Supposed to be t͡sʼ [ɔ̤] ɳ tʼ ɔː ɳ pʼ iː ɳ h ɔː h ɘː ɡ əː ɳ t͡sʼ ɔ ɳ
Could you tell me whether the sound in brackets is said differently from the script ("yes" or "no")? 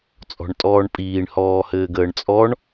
no